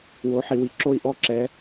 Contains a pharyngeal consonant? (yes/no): yes